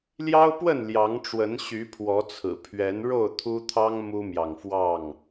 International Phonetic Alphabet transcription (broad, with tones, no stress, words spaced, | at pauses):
ljɑ˦ʊ̯pwə˥˨n ljɑ˨˦ŋʈ͡ʂwə˨˦n ɕy˨˦pʰwɔ˨˦t͡sʰɹ̩˨˩ pʰɥɛ˨˦nɻo˥˨ʊ̯t̪ʰu˦t̪ʰɑ˦ŋ mu˦mjɑ˨ŋfwɑ˥˨ŋ